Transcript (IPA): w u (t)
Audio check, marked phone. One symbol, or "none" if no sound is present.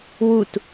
t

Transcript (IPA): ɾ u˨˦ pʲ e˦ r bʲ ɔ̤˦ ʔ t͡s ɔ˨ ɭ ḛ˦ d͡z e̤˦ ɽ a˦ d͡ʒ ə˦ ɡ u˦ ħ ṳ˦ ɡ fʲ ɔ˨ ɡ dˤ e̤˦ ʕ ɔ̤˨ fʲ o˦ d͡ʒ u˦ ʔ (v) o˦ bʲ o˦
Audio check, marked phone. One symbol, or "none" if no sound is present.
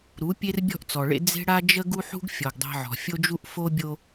f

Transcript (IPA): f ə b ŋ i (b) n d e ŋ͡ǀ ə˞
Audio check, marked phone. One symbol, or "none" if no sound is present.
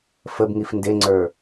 f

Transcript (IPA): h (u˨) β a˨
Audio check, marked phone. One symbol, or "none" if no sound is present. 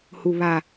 u˨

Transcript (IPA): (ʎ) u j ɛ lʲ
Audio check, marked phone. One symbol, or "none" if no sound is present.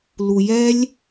l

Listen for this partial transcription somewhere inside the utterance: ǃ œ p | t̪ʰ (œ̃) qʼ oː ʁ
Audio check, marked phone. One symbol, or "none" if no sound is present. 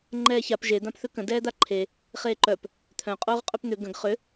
œ̃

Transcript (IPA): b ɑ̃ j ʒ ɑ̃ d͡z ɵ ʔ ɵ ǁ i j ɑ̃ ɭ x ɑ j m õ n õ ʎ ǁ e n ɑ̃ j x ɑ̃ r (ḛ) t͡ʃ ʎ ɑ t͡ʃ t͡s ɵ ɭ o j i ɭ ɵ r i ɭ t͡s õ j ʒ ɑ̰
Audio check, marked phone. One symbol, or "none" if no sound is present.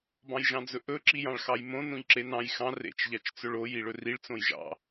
ḛ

